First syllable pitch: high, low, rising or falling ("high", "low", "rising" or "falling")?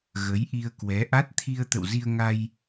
rising